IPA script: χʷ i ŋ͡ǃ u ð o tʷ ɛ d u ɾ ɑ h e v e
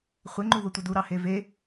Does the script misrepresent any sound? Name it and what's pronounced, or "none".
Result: i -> e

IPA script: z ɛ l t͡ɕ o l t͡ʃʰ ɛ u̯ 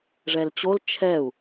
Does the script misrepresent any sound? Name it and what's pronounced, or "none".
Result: z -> ʐ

